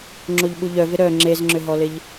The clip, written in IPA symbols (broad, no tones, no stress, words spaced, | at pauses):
ŋ͡ǁoʎɓuʎœvɪ ɾœ ŋ͡ǁezŋ͡ǁʏɦɔlɪʎ